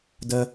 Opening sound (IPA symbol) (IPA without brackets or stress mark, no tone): d